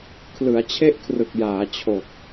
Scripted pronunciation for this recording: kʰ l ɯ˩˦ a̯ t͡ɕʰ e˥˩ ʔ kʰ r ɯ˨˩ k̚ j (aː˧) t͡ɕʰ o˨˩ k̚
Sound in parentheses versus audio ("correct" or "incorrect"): incorrect